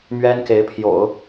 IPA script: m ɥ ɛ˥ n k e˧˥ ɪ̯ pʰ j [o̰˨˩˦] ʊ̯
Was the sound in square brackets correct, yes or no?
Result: yes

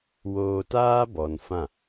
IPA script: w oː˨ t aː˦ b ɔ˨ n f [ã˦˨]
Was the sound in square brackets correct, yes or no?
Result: yes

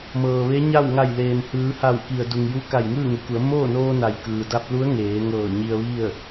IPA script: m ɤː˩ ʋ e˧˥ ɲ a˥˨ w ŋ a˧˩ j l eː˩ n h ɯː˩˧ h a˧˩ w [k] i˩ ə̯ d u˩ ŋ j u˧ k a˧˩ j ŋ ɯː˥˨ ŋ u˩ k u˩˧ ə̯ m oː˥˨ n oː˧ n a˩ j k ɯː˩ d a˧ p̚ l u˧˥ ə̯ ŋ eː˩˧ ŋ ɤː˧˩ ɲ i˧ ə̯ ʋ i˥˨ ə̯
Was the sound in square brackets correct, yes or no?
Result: yes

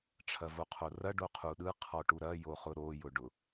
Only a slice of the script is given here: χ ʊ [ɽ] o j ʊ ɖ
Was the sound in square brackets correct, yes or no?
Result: no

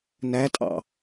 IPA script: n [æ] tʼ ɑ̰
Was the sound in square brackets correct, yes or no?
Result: yes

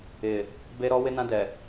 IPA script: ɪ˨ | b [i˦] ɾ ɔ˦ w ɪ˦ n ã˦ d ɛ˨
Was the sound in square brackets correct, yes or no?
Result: no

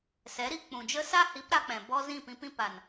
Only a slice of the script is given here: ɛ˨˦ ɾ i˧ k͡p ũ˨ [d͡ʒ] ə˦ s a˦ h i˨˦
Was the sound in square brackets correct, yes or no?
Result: yes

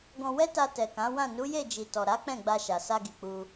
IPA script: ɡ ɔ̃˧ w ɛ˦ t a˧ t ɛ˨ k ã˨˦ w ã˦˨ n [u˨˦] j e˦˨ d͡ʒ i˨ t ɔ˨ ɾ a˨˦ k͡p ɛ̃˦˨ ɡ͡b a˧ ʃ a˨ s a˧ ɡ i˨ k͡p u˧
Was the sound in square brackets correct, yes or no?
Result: yes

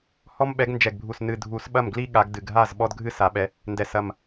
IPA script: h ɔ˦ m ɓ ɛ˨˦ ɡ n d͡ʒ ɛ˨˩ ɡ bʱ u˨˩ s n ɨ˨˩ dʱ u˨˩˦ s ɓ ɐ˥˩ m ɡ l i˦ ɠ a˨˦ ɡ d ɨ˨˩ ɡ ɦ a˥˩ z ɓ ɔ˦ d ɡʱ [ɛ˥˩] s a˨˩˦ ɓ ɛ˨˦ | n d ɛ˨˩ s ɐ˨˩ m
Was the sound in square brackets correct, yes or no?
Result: no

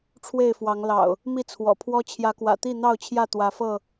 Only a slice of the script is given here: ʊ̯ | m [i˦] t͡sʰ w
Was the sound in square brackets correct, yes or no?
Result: no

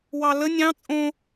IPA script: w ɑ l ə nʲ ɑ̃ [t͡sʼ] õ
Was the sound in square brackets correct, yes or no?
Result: yes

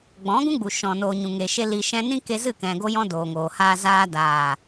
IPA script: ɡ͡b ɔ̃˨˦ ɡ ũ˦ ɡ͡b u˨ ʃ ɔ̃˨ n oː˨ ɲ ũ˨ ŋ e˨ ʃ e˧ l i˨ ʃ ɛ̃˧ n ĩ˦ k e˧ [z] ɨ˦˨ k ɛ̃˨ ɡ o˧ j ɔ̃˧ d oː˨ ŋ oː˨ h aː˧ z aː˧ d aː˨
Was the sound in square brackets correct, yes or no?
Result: yes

